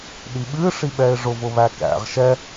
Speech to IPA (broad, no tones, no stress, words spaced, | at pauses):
ɗiɓɨ ʂiɓɛɪ̯ʐʊ vʊβækæ̰ʁ ʃɛ